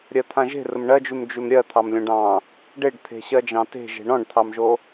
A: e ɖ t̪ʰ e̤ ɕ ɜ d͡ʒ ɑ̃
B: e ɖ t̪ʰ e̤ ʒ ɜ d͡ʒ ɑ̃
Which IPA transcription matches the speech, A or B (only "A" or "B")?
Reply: A